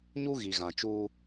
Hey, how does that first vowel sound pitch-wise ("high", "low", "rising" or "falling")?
high